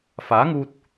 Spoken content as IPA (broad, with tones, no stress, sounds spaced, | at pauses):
f aː˨˥ ŋ uː˧ t̚